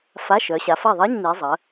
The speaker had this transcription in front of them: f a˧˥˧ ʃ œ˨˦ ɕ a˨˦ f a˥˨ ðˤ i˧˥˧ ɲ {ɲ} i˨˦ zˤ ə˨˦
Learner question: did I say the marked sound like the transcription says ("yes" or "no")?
no